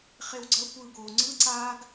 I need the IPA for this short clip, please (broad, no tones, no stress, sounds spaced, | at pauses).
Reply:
χ e w ɡ͡ǀ ʌ kʷ ɯː ɡ oː ŋ͡ǀ ɯ ǀ aː ɡ